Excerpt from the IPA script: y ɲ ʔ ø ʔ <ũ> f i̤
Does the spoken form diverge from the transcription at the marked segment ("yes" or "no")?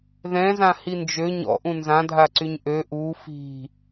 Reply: yes